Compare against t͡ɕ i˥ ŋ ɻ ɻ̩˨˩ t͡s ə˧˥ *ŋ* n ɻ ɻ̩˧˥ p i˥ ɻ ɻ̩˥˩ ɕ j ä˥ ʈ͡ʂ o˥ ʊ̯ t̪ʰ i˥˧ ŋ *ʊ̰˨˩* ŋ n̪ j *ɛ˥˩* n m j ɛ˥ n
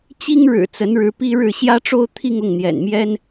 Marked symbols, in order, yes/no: no, no, no

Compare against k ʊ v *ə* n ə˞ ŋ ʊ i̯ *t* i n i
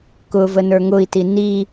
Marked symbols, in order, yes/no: yes, yes

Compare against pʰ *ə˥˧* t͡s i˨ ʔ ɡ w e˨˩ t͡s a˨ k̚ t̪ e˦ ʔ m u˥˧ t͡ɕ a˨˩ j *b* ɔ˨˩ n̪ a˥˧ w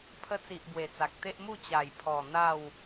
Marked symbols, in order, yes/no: no, no

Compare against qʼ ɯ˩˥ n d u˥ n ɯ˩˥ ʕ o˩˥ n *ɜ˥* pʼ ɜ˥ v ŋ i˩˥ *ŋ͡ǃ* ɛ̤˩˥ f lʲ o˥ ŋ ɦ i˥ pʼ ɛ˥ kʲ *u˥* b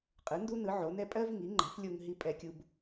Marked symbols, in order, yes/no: no, yes, yes

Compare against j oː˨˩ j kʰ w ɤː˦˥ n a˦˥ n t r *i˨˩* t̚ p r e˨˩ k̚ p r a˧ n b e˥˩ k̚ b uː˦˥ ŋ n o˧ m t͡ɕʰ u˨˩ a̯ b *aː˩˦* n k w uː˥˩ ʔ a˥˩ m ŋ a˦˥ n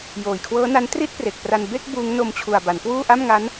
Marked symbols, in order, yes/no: no, no

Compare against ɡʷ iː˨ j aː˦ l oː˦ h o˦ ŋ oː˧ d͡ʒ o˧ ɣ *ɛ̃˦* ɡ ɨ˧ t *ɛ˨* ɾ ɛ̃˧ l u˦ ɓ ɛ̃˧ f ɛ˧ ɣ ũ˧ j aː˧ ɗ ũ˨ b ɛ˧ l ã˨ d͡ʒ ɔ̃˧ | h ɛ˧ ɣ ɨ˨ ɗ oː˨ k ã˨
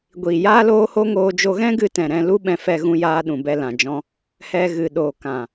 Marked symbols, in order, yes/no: yes, no

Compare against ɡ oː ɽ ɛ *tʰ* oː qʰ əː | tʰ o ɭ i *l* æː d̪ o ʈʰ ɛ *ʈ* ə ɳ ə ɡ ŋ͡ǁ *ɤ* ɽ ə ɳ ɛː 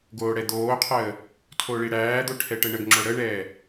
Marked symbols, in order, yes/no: no, no, yes, no

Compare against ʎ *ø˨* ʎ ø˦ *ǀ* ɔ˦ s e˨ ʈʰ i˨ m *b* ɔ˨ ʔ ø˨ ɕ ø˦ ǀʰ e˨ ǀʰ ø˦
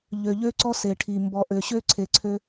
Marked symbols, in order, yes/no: yes, yes, yes

